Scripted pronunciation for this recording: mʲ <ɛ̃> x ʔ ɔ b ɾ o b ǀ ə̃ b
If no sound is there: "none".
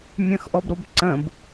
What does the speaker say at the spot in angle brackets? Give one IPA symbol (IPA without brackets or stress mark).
ə̃